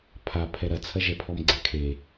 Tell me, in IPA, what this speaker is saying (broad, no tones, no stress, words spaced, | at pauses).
pʰa pʰɛɾɐt͡sʰɐʒɛ pʰɔmɡ͡ǀɛkʰe